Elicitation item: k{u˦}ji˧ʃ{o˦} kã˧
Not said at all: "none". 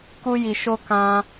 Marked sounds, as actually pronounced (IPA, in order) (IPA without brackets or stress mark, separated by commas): u˦, o˦